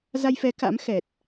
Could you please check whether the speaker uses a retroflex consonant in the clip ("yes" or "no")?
no